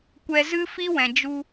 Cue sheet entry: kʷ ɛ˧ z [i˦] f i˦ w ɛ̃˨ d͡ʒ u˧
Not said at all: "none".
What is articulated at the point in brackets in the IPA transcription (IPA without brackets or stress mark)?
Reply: ɨ˦